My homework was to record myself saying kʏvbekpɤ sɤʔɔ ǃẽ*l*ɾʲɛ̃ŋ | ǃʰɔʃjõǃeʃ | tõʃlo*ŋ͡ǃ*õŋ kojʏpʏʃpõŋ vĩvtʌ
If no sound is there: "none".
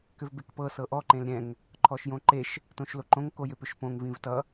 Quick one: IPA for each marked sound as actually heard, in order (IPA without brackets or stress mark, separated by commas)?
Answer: l, ǃ